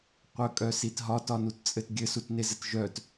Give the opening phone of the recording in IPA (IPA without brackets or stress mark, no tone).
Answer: qʷ